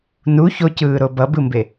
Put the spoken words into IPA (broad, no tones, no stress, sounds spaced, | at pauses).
n u ç o c ɯː ɾ o b ʌ b ɯ m b e